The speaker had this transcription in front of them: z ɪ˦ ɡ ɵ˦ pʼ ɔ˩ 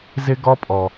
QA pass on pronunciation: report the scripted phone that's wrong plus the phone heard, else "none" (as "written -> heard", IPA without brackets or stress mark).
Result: ɵ˦ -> ɔ˦